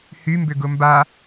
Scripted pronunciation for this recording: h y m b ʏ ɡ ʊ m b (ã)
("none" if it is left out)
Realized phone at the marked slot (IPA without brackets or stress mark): a